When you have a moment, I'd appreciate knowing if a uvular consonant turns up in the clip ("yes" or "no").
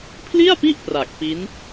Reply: no